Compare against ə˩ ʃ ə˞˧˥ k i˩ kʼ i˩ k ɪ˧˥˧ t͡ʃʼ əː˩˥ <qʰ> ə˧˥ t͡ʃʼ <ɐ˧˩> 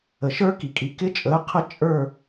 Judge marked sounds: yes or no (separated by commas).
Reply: yes, no